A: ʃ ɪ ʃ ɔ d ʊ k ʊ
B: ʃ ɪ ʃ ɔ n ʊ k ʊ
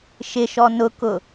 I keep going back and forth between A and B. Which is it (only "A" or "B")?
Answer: B